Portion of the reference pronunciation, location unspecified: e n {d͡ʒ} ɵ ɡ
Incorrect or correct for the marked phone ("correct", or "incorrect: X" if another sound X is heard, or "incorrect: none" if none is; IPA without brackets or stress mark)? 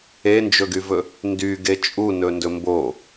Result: correct